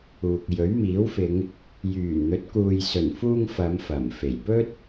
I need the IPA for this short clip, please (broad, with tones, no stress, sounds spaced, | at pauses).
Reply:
uː˨ k̚ j ɵ˨˥ ɥ m iː˨˥ w f ɪ˨˧ ŋ | j yː˨˩ n n̪ ɵ˨˥ t̚ k uː˨ j s ɵ˨˩ n f uː˧ ŋ f ɐ˨˧ m f ɐ˨˩ m f e˨˩ j p ɵ˥ t̚